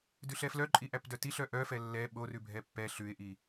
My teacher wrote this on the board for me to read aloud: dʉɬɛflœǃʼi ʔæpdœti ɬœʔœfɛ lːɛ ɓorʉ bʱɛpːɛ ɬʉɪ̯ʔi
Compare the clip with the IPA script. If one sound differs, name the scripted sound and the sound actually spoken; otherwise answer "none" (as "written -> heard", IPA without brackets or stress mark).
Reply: none